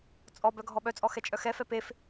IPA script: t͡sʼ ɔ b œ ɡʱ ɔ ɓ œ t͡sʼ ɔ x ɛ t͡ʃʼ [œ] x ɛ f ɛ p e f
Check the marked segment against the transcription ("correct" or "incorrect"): correct